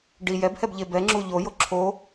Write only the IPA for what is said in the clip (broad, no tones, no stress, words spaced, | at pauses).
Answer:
ɖi jɛbhɛbʎe bɛŋ͡ǁu ʎojo ǁʰo